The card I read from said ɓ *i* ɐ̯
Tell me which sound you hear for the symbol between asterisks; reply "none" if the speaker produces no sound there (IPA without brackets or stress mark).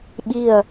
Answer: i